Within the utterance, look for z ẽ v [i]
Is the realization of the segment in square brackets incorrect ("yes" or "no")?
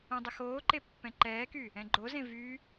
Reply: yes